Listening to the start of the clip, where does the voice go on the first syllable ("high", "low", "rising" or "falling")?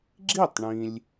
falling